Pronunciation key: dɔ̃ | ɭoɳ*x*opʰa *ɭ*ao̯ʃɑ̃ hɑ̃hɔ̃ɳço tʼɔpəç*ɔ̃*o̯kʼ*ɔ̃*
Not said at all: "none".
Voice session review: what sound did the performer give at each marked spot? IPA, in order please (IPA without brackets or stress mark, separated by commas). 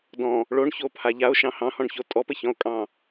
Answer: ç, ʎ, ɔ̃, ɑ̃